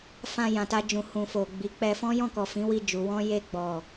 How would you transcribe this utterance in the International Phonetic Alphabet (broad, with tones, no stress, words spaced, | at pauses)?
fã˧ jã˨ta˧d͡ʒũ˨ hũ˨fo˨ ɡ͡bi˨˦ k͡pɛ˧fɔ̃˦jɔ̃˦˨kɔ˨ fĩ˨˦wi˧d͡ʒu˨ wɔ̃˧je˧ ɡ͡bɔ˨